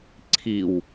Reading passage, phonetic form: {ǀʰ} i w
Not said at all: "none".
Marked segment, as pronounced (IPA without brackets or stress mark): ǀʰ